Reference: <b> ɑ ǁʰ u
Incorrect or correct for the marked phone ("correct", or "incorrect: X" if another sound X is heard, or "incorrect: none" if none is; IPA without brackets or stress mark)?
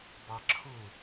correct